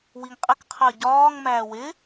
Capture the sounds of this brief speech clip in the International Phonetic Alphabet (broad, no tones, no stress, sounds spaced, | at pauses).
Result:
w i ŋ qʼ ɪ k qʰ ɜ ɟ ɒː ŋ m æː w ɪ